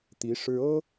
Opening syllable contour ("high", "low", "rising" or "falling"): rising